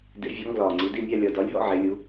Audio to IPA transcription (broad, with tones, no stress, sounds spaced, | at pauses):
d ḛ˩˥ vʲ ɒ˩˥ ŋ ɡ l ɒː˨˩ ŋ͡ǀ i˩˧ d i˥˨ mʲ a˥˨ lʲ ɒ˨˩ d ɒ˩˥ lʲ ɦ ɔ̰˥˨ ʕ e˩˧ lʲ u˩˧